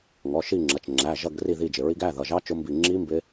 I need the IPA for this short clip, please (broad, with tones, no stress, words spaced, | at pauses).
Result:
ŋɔ˩˧˩ʃi˦˨ŋ͡ǁʌ˩˧˩t͡ʃ ŋ͡ǁæ˩˧˩ʒʌ˦˨ɡ ri˦˨ði˦˨d͡ʒɪ˩˧˩ɹi˦˥ɡ æ˧˥˧ ðʌ˩˧˩ʒɑ˦˥ t͡ʃʊ˦˥mbi˦˨ ŋ͡ǁi˦˥ mbɪ˦˥